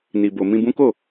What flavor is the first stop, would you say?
plain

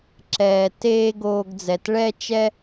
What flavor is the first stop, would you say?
click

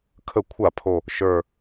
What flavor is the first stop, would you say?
aspirated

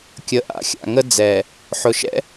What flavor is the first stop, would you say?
plain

